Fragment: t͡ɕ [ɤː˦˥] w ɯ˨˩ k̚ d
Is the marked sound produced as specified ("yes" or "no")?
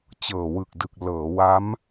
no